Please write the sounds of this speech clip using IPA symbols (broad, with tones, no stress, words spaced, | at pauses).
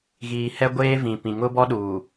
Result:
ɣiː˨hɛ˦ɡʷeː˦ vĩ˨pĩ˨ ŋʊ˦bɔ˦ɗuː˨